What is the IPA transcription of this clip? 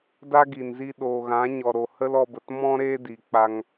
d a˦ ɡ i˨ n z i˧ ɗ oː˨ ɣ ã˨˦ ɲ ɔ˨ ɾ o˨ h ə˦ l ɔ˧ b ə˨ t m ɔ̃˦ ɾ eː˦ d i˨ k͡p a˧ ŋ

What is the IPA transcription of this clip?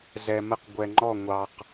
z ɛ˨ m ɜ˦ q ɡʷ ɛ˨ ŋ͡ǃ ɔ˦˨ ŋʷ ɑ˨ q

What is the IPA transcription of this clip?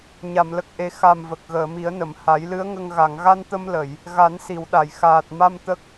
ɲ a˨˩˨ m l ə˨˩ k̚ ʔ e˨˩˦ x a˨˩ m v ə˨˩ k̚ ɣ əː˨˩˨ m i˨˩˦ ə̯ n ə˨˩˨ m h a˨˩˦ j l ɨ˧˥ ə̯ ŋ ə˧ ŋ ɣ a˨˩˨ ŋ ɣ a˧ n t̪ ə˧ m l ə˨˩˨ j | ɣ a˨˩˦ n s i˨˩˨ w ɗ a˨˩˨ j x aː˨˩ t̚ m a˧ m t̪ ə˦˥ k̚

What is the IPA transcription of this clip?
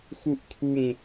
x u ʔ kʰ u ŋ

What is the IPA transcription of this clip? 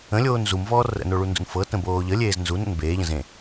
ə̃ lʲ oː n z u m v ɔː r ə̰ n o ɭ u n d ṵ n f ɤ t ə̃ b oː ʎ ə lʲ eː z n z u n ə̰ n b eː ʎ ə̃ z ẽ

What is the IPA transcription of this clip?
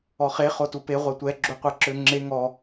ɔ χ e χ o t u p e ʁʷ ɛ tʷ ɛ ɡ͡ǁ u qʷ æ ǁ ø ŋ͡ǁ e ŋ ɔ

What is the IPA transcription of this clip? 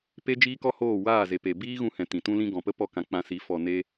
p e˦ d͡ʒ iː˦ k ɔ˦ h oː˦˨ w aː˦˨ z e˨ p e˨ b iː˦ ɣ ũ˧ h ɛ̃˨ t ĩ˨ t ũ˦ l ĩ˧ ɡ ɔ̃˨ p ə˦ p ɔ˦˨ k ã˧ k͡p ã˧ s i˨˦ f ɔ˨ n e˧

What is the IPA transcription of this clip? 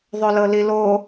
ðˤ ø l ɤ l i l o

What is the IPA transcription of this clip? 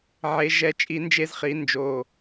ʕ e˩˧ ʒ ɛ˨˩ t͡ʃʼ i˧˩˧ n d͡ʒ e˧ z χ i˩˧ n d͡ʒ o˨˩

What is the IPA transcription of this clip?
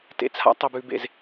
t ḛ˨ t͡sʰ a̰˦ tˤ e˨ b ʉː˨ b ḛ˨ z

